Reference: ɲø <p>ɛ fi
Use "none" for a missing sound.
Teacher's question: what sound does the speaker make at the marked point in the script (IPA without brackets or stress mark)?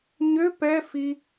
p